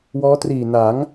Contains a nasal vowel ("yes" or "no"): no